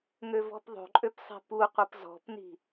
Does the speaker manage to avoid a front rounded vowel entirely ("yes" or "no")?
no